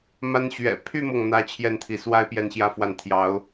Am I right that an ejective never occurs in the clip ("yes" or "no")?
yes